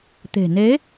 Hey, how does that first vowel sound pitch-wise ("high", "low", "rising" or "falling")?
low